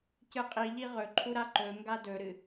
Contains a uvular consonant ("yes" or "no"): yes